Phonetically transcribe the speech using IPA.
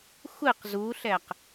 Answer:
xʷɨq zuɬɛq

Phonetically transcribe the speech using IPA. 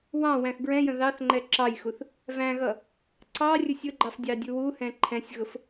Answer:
wɑ̃ wæ̃xɡɹɛ̃jə̃ ðɑθ ŋ͡ǃɛǁɑjxuθ | væ̃ɣʌ | ǀɑrʲʊsʲ ʊɡ͡ǃɑf dʲɑdʲuwuhɛ̃ ǃʰɛ̃sʲɣʊf

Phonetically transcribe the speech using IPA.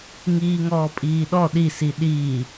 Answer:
ŋiːŋɔːpʼiːɗɔ ɗisi ɗiː

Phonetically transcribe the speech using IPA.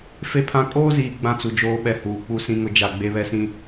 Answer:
fe˦pʰã˦ kʼoː˦ziː˨ ɡ͡bã˦t͡su˨d͡ʒoː˦ ɓɛ˨ huː˨ k͡pu˦sĩ˦ŋʊ˦d͡ʒa˦˨ ɡ͡be˦βɛ˦sĩ˦

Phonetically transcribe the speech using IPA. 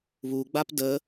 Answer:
βuɡ͡bap də

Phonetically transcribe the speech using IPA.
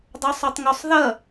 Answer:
dˤosˤʉtˤŋusˤ ðɐ

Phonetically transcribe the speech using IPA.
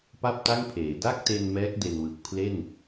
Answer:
pa˥˩p̚ta˥˩ŋpʰeː˩˦ da˥˩k̚te˧n mɛː˦˥k̚de˧nwɯ˨˩k̚ pʰle˥˩n

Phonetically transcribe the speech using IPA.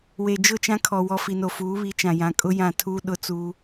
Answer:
we˨d͡ʒʊ˦˨t͡ʃã˦kʰɔ˨ wɔ˨fi˨no˨ fuː˨˦βi˨˦t͡ʃã˨jã˨ kʼʊ˦ jã˦˨tʰuː˦ ɗʊ˦t͡suː˦

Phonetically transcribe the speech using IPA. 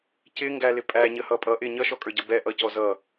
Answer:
cɪŋɡælɪ pʼæɲəhʌ pʼʌ ʔɪ ɲʌʃɔkʼə˞ɟʌ bɛʔʌcɔ zʌ

